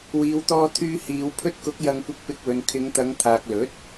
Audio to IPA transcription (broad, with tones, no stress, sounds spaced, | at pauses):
w iː˨ w t̪ ɔː˧ t̪ʰ yː˧ h iː˨˧ w pʰ ɵ˧ t̚ k ʊ˨˥ k̚ j ɐ˧ ŋ kʷ ɪ˧ k̚ p ɪ˧ k̚ w ɵ˨ n kʰ ɪ˨˧ ŋ t̪ ɐ˨˧ ŋ t̪ʰ aː˨ k̚ l ɵ˨˥ t̚